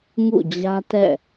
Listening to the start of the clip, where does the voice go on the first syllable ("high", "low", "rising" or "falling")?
falling